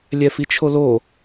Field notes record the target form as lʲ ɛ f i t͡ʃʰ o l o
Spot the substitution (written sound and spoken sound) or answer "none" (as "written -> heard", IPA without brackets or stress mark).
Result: none